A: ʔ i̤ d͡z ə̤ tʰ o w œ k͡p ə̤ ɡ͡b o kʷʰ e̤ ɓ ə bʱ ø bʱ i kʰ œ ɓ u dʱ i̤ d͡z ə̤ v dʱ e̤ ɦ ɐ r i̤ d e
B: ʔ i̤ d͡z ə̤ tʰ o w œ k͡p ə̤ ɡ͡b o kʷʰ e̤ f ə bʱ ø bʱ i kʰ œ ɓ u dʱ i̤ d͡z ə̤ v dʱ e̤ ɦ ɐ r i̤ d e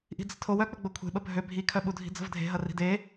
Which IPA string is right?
A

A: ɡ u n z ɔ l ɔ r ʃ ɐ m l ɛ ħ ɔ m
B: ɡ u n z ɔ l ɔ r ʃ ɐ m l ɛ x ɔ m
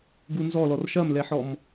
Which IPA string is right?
A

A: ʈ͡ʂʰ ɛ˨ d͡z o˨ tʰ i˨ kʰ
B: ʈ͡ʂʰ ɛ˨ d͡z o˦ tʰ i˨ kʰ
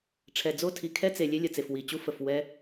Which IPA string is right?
B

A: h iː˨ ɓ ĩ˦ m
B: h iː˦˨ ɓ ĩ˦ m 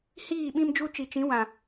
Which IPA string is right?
B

